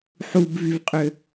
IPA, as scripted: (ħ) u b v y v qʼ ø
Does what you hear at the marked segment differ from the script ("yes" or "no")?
no